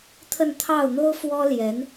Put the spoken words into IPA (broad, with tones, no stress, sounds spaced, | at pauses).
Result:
t̪ʰ ə˥˧ n t̪ʰ ɑ˥˩ ʊ̯ n̪ o˥ ʊ̯ f w ɔ˥ l j ɛ˧˥ n